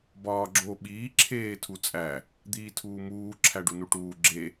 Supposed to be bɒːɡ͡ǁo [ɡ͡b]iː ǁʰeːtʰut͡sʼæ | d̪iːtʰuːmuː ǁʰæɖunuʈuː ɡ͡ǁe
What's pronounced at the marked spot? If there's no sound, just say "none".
ɓ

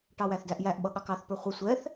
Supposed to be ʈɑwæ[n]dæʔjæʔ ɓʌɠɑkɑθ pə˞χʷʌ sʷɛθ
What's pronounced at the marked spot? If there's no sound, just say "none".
θ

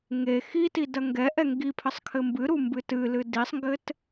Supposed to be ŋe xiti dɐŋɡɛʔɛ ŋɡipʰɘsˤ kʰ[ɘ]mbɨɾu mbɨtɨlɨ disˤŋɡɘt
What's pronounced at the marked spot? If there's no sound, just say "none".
ɘ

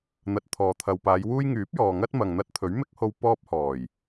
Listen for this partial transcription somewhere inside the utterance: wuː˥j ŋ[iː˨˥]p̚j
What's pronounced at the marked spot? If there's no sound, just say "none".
yː˨˥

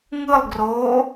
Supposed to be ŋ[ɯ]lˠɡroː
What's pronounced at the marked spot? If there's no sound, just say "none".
ɯ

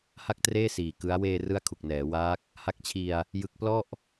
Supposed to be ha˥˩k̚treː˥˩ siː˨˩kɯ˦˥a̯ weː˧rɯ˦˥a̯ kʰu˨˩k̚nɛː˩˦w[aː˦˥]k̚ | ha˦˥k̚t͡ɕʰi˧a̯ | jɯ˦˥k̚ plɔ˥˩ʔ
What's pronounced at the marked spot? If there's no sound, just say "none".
aː˦˥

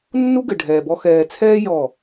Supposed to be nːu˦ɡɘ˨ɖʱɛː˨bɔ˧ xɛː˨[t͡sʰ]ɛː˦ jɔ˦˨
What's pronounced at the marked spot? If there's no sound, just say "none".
t͡sʰ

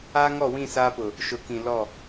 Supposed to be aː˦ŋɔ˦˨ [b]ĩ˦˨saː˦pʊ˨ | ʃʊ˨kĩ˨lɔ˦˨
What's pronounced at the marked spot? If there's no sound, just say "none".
w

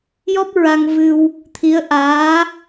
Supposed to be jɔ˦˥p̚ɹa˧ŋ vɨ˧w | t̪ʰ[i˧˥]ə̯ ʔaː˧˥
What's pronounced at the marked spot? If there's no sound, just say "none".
i˧˥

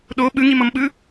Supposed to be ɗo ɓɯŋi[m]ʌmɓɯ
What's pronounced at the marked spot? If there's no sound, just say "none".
m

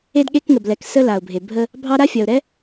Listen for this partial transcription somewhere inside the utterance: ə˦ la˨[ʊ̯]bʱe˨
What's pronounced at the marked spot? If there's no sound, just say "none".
ʊ̯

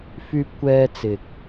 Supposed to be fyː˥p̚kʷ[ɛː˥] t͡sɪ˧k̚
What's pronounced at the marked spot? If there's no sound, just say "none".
ɛː˥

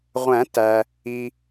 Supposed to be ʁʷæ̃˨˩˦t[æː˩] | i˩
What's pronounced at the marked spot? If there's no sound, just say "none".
æ˩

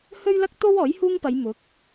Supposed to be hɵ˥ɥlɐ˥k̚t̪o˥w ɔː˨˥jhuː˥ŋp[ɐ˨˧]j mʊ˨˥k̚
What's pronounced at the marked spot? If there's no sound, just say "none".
ɐ˨˧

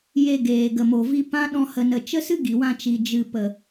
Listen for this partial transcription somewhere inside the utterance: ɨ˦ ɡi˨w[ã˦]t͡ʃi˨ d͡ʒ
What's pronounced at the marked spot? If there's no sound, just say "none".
ã˧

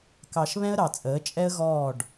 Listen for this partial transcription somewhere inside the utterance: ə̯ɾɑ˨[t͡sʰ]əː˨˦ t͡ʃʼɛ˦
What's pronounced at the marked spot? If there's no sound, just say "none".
t͡sʼ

